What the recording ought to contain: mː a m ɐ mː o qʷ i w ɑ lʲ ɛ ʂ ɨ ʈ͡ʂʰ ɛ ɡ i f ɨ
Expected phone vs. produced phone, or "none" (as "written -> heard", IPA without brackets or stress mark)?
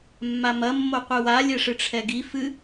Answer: ɑ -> a